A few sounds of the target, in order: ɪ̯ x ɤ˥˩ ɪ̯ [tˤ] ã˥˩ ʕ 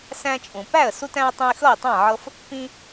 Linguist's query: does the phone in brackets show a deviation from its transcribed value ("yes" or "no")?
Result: no